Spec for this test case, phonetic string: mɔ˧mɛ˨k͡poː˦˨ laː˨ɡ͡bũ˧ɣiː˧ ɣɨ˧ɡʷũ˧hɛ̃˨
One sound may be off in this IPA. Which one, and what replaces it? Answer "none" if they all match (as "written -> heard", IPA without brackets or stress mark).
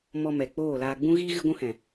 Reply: none